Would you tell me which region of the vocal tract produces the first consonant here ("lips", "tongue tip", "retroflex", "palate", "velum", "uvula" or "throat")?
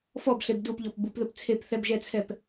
lips